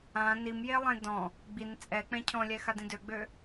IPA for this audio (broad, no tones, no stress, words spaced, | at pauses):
ã nimjelˠẽ dɔ̃ | ɡ͡bin t͡sʼɛk͡pɛ̃ cʰɔ̃lʲɛxadĩ døɡ͡bø